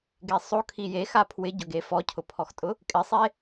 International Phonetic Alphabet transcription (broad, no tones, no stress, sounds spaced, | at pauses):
ɡ e sˤ o kʰ i j e x a pʰ w ɪ ɟ ʊ ɡ e f ɔ cʰ ʊ pʰ ɔ x tʼ ʊ | kʼ ɪ sˤ e